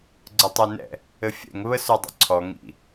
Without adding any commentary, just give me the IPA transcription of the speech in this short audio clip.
ɡ͡ǀ ə tˤ ʉ n ɛ̰ | ɘ fʲ ɛ̰ ŋ β ə s ʉ dˤ ə̰ ǀʰ ɔ ŋ ḭ

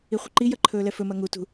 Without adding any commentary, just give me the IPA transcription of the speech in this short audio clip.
i χʷ ɐ ǃ i j ɐ ǃʰ ɵː l ɛ f ɵ m ɐ ŋ u t ṳ

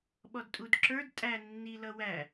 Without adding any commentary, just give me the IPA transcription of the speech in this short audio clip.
ɓ ɔ d tʼ u d ǁ ə˞ d tʼ æ nː i l ʌ w æ

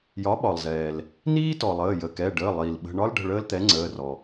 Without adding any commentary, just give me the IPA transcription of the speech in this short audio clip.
j ɒ˩˥ ɓ ɒ˩ lˠ z ɛː˩ l | n iː˦ t ɔ˩ lˠ əː˩˧˩ j ə˩˧˩ k ɛ˩˧˩ ɖ əː˩˧˩ lˠ iː˩ l ɓ ə̤˩˧˩ ɳ ɒ˦ l ɖ ə̤˩˧˩ ɭ əː˦ l t̪ ɛ˩˥ ŋ͡ǀ əː˩˧˩ r ɔ˩

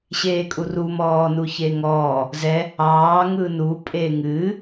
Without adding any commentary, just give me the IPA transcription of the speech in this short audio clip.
ɕ eː kʼ u r u m ɔː n u ç e ŋ ɔː | z ɛ | ɑː ŋ ɯ n u pʼ eː ŋ ɨː

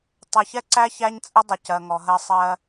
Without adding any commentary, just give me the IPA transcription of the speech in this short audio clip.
tˤ e˨ ç ɛ˦ ǀ æ˦ ç æ˦ ɲ t͡sʼ ə˦ dˤ ə˨ c ɜ˨ ŋ ɔ˨ ɦ ɜ˦ sˤ ɜ˦

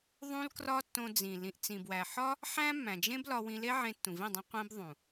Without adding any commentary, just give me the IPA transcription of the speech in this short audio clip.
ðˤ ũ˦ l k r ɒ˦ tː õ˧ d͡z ĩ˨ l ĩ˨ ʔ t͡s ĩ˨ b w æ˨ ħ ɒ˦ | ħ æ̃˦ mː æ̃˨ d͡ʒ ẽ˦ b l ɒ˧ w ĩ˧ l e˦ ʕ ẽ˧ tː ũ˨ v ĩ˦˨ dˤ ĩ˧ qʷ ẽ˦ b ðˤ ũ˨

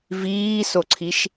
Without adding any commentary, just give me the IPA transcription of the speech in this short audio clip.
v iː s o ǀʰ i ʃ

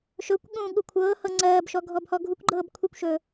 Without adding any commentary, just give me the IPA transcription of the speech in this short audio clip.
ʃ ɵ kʷ ɠ ũː ɠ u kʷʰ ɤː h ɤ ŋ͡ǀ ɜː b ʃ ɔ ɡʱ ɔ b h ɔ ɡʱ u kʷ ɡ͡ǃ ɤː b kʷʰ i kʷ ʃ ɵː

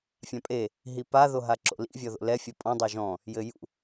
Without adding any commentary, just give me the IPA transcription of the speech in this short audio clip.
fʲ ã pʼ e | ɦ i p a ð o ɦ a ǁ o̰ l ḭ vʲ ɔ ð o̰ l ɛ fʲ ɔ pʼ ɔ̃ dˤ o ʒ ɔ̃ | j ɘ j ṵ

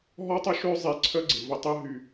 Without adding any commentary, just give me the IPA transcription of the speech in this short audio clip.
ɦ ɔ˦ tˤ ʏ˦ ʃ ø˦ zˤ e˧ ǀʰ œ˦ ɡ͡ǀ ɪ˨ v ə˧ tˤ ə˦ ɦ y˧

